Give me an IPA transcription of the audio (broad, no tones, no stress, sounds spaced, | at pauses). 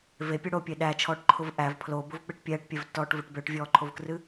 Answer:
v e pʲ ʊ ɽ o pʲ e ɗ æ t͡ʃʰ ɔː ʈ ǃʰ ʊ v ʔ æ v pʰ l o b ʊ v k͡p ɨ ʈ pʲ ɛː ʈ pʲ ɛ v tː ɔː ʈ v ʊ ʈ b ø ʈ vʲ ɔː ǃʰ o v k r ɨ